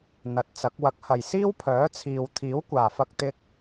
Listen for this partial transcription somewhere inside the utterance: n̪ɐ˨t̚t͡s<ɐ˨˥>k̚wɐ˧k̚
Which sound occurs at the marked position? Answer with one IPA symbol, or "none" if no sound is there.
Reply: ɐ˨˥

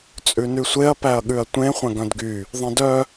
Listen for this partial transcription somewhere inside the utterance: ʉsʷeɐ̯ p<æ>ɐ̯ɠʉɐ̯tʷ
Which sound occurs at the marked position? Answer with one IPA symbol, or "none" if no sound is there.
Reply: æ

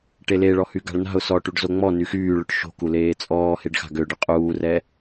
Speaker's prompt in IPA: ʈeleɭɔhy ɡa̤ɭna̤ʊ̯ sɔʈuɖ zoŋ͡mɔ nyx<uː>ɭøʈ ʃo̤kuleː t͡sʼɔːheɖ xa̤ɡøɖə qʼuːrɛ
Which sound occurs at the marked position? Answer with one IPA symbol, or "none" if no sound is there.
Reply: yː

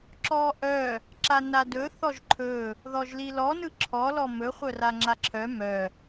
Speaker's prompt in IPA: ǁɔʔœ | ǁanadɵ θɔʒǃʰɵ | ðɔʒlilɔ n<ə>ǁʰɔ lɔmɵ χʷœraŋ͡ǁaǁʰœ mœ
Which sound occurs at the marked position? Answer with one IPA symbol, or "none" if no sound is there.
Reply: ɯ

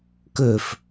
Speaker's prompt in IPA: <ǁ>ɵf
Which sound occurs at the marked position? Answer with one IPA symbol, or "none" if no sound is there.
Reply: k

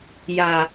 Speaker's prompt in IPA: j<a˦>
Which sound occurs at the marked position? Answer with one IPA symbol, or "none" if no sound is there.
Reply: a˨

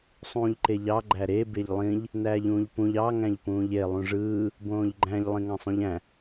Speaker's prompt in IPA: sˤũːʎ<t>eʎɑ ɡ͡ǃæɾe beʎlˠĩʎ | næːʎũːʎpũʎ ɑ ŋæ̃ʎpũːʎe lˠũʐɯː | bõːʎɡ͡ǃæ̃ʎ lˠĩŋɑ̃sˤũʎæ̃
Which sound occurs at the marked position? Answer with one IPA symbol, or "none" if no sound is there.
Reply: ǃ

